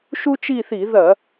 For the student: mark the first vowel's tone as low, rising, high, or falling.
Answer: high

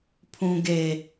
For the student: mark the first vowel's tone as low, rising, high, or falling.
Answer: high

